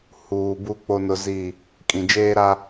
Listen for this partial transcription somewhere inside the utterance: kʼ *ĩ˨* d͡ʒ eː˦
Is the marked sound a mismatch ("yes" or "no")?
no